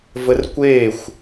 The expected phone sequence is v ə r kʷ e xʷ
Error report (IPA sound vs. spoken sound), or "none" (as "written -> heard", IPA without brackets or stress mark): none